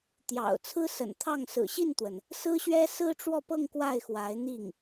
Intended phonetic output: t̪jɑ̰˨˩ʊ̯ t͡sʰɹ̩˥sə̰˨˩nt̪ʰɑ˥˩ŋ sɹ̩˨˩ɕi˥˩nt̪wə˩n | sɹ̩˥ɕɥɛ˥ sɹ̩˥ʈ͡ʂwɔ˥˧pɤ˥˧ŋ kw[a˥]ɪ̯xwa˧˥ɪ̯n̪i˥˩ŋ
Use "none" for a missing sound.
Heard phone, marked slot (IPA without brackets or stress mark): a˥˩